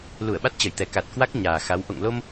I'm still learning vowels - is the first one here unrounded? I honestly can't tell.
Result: no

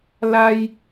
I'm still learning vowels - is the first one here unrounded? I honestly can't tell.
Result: yes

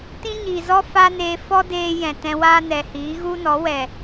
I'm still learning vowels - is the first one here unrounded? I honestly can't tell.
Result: yes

